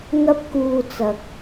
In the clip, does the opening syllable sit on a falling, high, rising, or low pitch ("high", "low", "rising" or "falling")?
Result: high